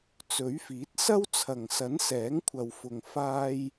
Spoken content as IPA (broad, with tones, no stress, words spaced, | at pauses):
t͡sɵ˨˥ɥfiː˨˥t̚ sɐ˥wt͡sʰɐ˨˩ŋsɐ˨˥n sɛː˨˥ŋkʷʰɐ˨wfʊ˨ŋ faː˥j